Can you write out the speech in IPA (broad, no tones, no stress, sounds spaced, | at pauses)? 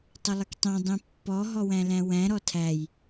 tˤ ə lˠ ɪ k tˤ ɛ̃ dˤ ĩ pː ɔ ɦ ɔ w æ̃ l æ̃ w æ̃ ɾ ɔ tʰ æ j